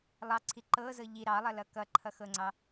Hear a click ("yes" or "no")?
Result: yes